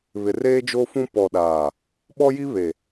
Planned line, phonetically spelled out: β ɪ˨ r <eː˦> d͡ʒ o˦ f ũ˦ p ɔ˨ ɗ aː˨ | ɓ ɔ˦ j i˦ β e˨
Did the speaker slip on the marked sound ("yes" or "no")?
no